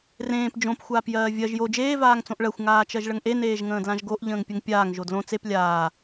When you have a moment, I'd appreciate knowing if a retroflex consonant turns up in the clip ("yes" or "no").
yes